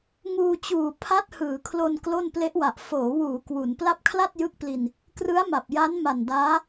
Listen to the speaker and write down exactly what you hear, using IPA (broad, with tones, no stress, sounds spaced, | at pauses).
ŋ uː˧ t͡ɕ uː˨˩ pʰ a˦˥ t̚ h ɯː˩˦ kʰ l o˧ n k l o˥˩ n p l e˦˥ ʔ w a˨˩ ʔ f oː˩˦ w uː˩˦ k w u˩˦ n p l a˦˥ p̚ kʰ l a˥˩ t̚ j ɯ˦˥ k̚ p l i˧ n | k r ɯ˦˥ a̯ m a˨˩ p̚ j a˦˥ n m a˨˩ n d aː˦˥